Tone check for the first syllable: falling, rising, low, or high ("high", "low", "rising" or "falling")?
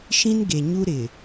high